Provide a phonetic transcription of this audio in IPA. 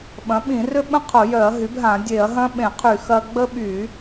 ɓɐ̃˩˥ɓĩ˧˩˧rʏ˦ɓə̃˦ qʰʊ˧˩˧jœ˧˩˧ɐ̯ ɦy˩˥bɦã˧˩˧ dʲe˧˩˧ɐ̯ɦɐ̃˦ɓẽ˧˩˧qʰy˧˩˧ xɐ˦ ɡ͡bə˦ɓy˧˩˧

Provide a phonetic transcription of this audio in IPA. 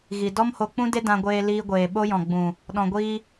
ɣi˨ dɔ˦mho˧k͡pũ˦de˦ dã˧ɡʷeː˧liː˧ɡʷeː˨ ɓo˦jɔ̃˨ɡ͡bũ˨ | ɗɔ̃˨ɡʷiː˧

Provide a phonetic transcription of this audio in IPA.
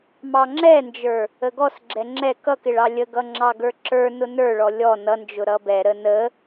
mɑŋ͡ǁɛnd͡ʒə˞ | əɡɔsɡ͡ǁɛ ŋ͡ǁɛ kʌk ɪɭɑlʲəɡʌ ŋ͡ǁɑɡə˞ǁə˞nʊ nə˞ɭɔ lʲɔ nʌnd͡ʒʊ ɾʌbɛɾə nə

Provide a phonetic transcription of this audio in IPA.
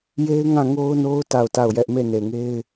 je˦ɪ̯ŋã˦˨ŋo˦ʊ̯no˦ʊ̯ ta˦˨ʊ̯ta˦˨ʊ̯jɛ˦ʔ me˦˨ne˨ŋe˦ɪ̯

